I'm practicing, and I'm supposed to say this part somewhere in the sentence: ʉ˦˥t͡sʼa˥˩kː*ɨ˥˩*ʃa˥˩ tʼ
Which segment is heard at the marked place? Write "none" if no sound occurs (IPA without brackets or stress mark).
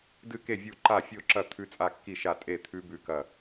i˥˩